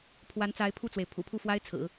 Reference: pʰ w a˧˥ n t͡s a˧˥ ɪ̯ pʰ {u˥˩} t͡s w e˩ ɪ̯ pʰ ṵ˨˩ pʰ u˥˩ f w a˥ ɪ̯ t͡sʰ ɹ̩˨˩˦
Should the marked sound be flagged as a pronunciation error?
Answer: no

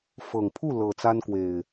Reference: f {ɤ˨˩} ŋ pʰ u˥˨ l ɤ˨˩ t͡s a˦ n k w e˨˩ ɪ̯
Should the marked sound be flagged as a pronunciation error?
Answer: no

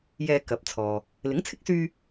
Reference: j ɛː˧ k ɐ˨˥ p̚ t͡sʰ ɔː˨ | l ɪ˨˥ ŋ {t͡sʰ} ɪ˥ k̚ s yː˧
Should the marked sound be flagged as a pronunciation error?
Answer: no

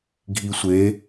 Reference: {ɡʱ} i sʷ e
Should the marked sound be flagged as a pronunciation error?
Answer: no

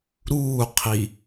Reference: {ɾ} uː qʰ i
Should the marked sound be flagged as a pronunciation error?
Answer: no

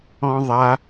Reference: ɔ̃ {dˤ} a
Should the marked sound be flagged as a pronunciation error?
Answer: yes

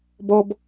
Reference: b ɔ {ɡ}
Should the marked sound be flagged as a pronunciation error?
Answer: yes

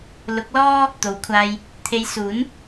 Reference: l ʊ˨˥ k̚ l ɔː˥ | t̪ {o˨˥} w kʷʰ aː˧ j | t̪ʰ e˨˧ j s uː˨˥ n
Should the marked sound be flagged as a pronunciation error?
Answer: no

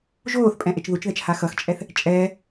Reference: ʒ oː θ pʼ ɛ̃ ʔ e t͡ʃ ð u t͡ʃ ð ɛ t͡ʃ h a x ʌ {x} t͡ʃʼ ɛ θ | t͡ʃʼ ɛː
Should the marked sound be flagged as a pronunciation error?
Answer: no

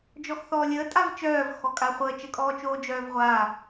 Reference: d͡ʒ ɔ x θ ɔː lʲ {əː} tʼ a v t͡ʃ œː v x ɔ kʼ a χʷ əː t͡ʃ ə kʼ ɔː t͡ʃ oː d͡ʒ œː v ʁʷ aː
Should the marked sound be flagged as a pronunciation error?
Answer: no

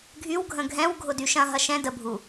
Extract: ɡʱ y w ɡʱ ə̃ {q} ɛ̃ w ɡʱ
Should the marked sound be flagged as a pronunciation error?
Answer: yes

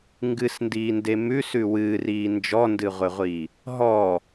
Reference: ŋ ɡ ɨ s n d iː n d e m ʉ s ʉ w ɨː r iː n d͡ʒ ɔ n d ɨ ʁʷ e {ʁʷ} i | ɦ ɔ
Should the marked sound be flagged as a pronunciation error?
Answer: no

